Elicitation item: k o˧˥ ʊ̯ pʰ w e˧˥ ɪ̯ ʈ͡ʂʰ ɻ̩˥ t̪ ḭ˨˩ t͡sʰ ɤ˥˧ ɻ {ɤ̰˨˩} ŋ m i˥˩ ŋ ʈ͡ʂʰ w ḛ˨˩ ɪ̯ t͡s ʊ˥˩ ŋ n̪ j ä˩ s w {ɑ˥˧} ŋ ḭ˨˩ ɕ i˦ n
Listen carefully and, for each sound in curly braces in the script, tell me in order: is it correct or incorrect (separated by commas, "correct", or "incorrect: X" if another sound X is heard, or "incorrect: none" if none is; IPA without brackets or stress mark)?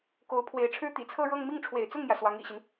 incorrect: ɤ˥˧, incorrect: ɑ˧˥